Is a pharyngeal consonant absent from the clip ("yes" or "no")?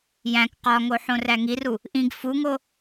no